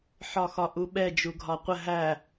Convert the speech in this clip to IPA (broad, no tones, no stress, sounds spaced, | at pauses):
ħ ɒ x ɒ ʔ u ɓ ɛ d͡ʒ u ɡʱ ɒ qʷ ə ɦ æ